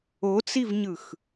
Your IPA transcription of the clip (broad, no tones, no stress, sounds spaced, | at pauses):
o t͡s i v ɲ ɯ x